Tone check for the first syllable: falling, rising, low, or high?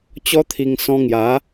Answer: high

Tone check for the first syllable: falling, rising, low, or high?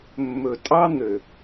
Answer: low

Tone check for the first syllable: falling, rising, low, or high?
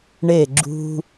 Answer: falling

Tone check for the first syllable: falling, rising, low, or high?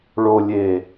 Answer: low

